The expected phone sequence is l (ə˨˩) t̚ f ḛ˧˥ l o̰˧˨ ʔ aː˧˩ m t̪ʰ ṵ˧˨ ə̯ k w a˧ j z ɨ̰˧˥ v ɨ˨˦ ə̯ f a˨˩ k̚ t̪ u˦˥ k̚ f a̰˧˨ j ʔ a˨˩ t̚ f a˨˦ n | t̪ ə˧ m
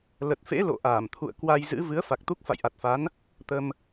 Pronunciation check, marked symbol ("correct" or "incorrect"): correct